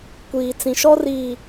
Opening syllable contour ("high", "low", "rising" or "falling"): low